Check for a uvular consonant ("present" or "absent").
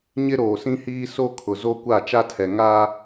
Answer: absent